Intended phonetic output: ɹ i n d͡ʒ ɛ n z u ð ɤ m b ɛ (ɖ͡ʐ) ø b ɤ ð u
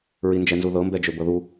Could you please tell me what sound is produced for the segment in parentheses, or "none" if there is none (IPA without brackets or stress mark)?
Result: d͡ʒ